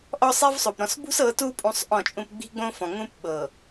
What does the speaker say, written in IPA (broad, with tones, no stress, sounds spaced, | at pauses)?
ʔ ɔ˦ sˤ i˦ v sˤ o˨ p ɾ ɔ̃˨ s b ṳ˦ s ɤ˨˦ t u˦ pʼ ũ˦ sˤ ʔ ɔ̃˦˨ t͡ʃʼ ũ˦ p ɡ͡b i̤˦ ɡ͡b õ˦ f ɔ̃˨ ŋ ũ˦ p ɓ ɤ˨